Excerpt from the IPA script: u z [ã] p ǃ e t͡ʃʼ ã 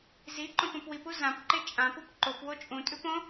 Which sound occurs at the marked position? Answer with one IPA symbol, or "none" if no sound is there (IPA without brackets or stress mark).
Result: ã